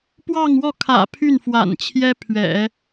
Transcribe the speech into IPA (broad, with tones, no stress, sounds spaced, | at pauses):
p w ɑ˥˧ ŋ w ɔ˥˩ kʰ ä̰˨˩ pʰ y˥˩ n f w a̰˨˩ n t͡ɕʰ j ɛ˥ pʰ ɥ ɛ̰˨˩˦